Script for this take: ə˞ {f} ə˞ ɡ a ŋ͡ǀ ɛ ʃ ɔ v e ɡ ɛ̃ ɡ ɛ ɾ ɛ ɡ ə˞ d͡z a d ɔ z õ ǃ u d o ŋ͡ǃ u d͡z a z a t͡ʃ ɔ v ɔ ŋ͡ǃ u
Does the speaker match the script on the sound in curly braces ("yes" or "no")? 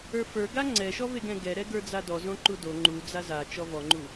yes